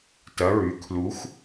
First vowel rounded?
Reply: no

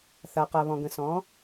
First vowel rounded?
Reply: no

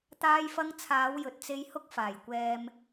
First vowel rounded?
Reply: no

